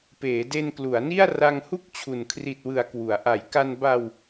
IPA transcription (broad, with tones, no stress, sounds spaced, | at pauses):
p eː˩˦ d e˧ n k l u˩˦ a̯ n i˥˩ a̯ r a˧ ŋ h u˥˩ k̚ t͡ɕʰ u˨˩ n kʰ r i˨˩ t̚ w ɯ˩˦ a̯ k w u˩˦ a̯ ʔ a˩˦ j k a˧ n b a˧ w